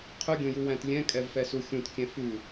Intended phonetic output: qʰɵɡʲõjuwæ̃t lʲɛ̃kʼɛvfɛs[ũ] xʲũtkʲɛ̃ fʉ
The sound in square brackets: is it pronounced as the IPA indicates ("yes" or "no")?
no